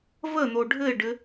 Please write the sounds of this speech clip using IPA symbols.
v ə n̪ o ɖʱ ɘ ɪ̯ ɖ ɘ

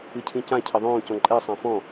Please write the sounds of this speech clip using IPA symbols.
ɨ cʰ ĩ c ã cʰ ɐ ðˤ õː c ɔ̃ ǃʼ ɛ sˤ ã f ɔ̃

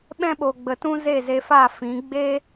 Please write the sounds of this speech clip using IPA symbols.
ɓ ɛ̃˦ ɓ o˨ ɡ͡b ə˨ t ũ˦ z e˦˨ z e˧ f a˦˨ f ĩ˨˦ ɡ͡b e˦

